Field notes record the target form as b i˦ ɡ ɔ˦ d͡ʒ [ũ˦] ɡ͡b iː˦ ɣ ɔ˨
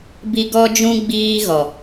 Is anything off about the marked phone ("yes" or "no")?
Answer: no